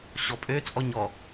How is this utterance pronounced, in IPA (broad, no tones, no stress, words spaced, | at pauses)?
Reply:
ɕɔpʼø t͡sʼɔɲɔ